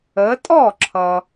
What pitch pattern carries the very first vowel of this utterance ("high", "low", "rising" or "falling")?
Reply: rising